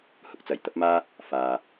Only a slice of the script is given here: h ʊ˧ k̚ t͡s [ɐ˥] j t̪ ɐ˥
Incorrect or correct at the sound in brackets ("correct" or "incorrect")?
incorrect